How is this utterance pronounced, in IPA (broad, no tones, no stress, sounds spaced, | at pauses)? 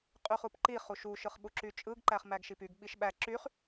qʼ y χ u p ǃ i χ u ʃ u ʃ ɯ χ ɓ u ǁ y t͡ʃʼ ɯ ɡ ǃ æ χ m æ ɡ ʃ i p y ɡ ɓ i ʃ ɓ æ ǁ y χ